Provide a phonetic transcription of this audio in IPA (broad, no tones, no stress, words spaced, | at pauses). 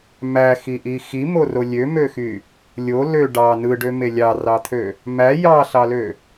mæxiʔi ximoro lʲømøxy | lʲo lø ɖɑ nɯɖøme lʲɑrɑt̪ʰø | mæ jɑɬɑlø